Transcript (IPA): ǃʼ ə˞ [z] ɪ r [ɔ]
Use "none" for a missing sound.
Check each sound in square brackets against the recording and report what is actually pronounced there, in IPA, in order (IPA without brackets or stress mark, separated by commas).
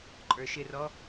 ʃ, ɔ